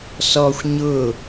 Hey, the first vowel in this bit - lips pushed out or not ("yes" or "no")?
yes